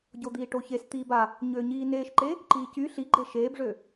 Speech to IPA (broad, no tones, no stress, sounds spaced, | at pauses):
ɟ o d̪ iː ʈ o ç e s t̪ iː b a | ɲ øː ɲ iː n eː ʃ ǃ e | ǃ iː c y ɬ i ɡ͡ǃ e ʃ eː b ʐ ø